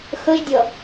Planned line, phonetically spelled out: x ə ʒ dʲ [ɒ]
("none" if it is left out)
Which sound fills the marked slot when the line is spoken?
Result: ʌ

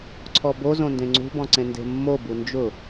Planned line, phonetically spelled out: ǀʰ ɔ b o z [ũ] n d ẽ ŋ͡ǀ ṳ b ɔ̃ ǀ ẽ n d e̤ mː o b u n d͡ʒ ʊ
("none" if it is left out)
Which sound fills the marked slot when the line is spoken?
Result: õ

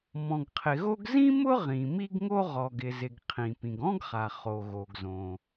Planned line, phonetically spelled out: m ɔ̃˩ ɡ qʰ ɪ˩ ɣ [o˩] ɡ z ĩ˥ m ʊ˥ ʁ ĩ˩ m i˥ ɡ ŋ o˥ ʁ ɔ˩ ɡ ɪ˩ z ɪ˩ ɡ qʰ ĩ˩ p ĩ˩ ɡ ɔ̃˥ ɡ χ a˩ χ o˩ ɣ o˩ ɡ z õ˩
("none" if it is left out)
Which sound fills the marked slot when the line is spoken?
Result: o˥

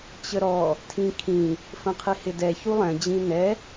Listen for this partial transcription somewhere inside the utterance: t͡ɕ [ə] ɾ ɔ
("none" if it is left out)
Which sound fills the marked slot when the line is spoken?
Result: ə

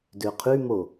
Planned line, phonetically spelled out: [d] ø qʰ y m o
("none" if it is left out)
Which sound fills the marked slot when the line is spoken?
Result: d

